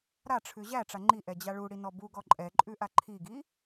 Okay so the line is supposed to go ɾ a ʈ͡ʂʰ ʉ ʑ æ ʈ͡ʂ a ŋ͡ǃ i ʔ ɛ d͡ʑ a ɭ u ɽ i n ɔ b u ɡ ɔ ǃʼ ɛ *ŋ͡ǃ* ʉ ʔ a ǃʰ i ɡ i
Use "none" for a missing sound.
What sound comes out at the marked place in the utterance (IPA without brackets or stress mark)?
ǃʼ